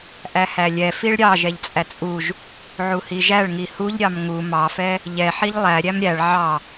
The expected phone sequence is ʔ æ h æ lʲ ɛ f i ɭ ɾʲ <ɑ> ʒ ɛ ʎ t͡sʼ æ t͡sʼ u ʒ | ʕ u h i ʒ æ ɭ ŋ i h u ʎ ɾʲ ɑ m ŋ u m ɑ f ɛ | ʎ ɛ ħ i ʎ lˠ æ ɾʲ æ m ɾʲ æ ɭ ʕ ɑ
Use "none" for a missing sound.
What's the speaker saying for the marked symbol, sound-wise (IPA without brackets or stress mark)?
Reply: ɑ